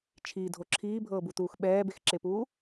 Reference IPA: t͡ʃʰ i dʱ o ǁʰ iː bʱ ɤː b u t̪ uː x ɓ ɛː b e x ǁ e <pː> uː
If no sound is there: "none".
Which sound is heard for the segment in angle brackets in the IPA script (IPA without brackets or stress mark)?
p